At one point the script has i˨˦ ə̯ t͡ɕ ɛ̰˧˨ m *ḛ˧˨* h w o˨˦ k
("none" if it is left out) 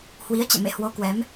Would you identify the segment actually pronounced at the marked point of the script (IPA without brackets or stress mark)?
ḛ˧˨